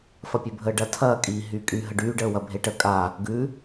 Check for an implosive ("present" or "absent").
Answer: absent